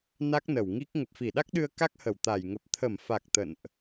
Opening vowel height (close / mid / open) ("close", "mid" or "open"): open